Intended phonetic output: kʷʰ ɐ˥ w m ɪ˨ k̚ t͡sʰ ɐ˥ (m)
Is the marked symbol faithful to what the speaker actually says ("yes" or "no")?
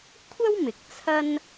no